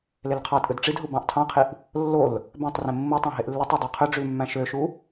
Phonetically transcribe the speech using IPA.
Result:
l e l qʰ ɑ tʼ ɯ d ʈ͡ʂ i d ɦ u b ɑ̃ ʔ tʰ ɑ̃ qʰ i ʔ | lː o l | b æ̃ tˤ r ẽ mː ɯ tˤ ɑ̃ ɦ e ʔ lː i tˤ ø dˤ e qʰ ø ɖ͡ʐ y l mː æ̃ ʃ ø ʃ u

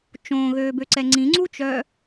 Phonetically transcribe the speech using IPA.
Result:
t͡ʃ õ ɣ øː b ø ǀ ɛ ŋ͡ǀ ĩ ŋ͡ǀ u t͡ʃ œ

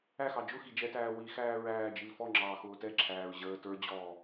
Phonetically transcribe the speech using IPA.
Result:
æ x ɑ d͡ʒ ʊ x i d͡ʒ ɛ t æː w i x æː ɹ æː d͡ʒ i l f ɔ ŋ͡ǁ ɑː x ʊː t ɛ ǁʰ æː ɹ ʑ əː t ə˞ d͡ʑ ɔː

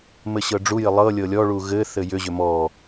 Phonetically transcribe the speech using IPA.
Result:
m ɘ ɕ ɤ ɖ͡ʐ u j ɘ lˠ ɤ lʲ ɤ lʲ ɔ ɭ u ɣ ɘ θ ɘ j ʏ ʑ ʏ m ɔ

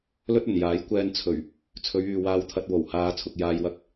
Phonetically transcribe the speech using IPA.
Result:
l ɵ˥ t̚ ɵ˨˩ n j aː˨˥ j kʷ ɛː˧ n t͡sʰ ɵ˨˩ ɥ | t͡sʰ ɵ˨˧ ɥ yː˨ w aː˧ w t̪ʰ ɐ˧ t̚ w o˨˩ w h aː˧ t͡sʰ ʊ˨ k̚ j aː˧ j w ɐ˧ k̚

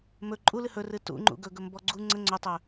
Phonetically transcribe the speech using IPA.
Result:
m ɵ ǃʼ u l ɨ h ɵ r ɨ t ṵ ŋ͡ǃ ṵ ɡ ɵ ɡ ɵ m b ɔ ɡ͡ǀ u ŋ͡ǀ ə ŋ͡ǀ ɵ tˤ ɵ

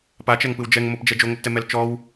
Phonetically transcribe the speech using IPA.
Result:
p a t͡ʃ ɛ ŋ p ɯ w d͡ʒ ɛ ŋ m o p d͡ʒ ɛ d͡ʒ o ŋ o p t ɛ m ɛ l t͡ʃ ɔ w

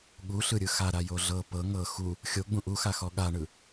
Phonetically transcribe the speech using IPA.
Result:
ɠ u ɬ ɯ ɾʲ ɯ x a ɾ a j o ɮ ɤ p ɤ ŋ ɤ x u | xʲ o ɡ͡b ũ ʔ u x a x ɔ ɠ a ɳ ɯ

